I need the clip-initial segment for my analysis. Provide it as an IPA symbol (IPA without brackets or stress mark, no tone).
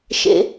ʃ